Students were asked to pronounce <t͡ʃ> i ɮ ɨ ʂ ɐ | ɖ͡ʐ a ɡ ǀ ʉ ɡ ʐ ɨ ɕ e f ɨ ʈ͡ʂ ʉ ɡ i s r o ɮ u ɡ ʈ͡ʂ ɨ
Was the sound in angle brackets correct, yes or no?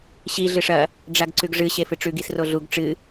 no